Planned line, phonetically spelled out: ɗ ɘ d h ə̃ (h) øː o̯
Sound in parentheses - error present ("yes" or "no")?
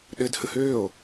no